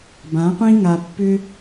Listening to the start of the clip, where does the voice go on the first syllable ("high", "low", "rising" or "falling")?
rising